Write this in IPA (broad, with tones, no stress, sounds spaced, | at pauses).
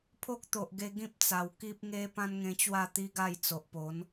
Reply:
pʰ o˦ k̚ t̪ o˨ ʔ ɡ e˧ ɡ ĩ˦ p̚ t͡s a˨˩ w k i˦ p̚ ŋ e˦ p ã˦ n ŋ ẽ˧ t͡ɕ w a˥˧ t̪ i˦ ɡ a˥˧ j t͡s o˨ ʔ p o˨˦ n